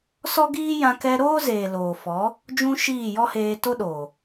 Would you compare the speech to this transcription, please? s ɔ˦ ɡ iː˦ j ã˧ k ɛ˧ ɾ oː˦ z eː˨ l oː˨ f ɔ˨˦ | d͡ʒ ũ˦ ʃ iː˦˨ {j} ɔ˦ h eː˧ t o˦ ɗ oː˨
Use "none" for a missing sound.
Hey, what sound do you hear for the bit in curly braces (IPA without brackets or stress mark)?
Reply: j